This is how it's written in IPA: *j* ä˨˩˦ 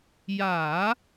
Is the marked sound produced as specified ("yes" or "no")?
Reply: yes